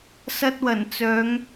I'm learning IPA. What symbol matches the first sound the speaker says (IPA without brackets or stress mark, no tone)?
s